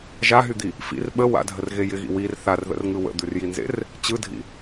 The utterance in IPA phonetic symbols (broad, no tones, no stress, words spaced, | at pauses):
ʒaɦyd̪i | fḭr ɓə wa̰dʱərɣe jɪɣḭ wir θarðə̰rŋɯ wə̰d̪ʉrjinzḛr | t͡ɕɯdʱḭ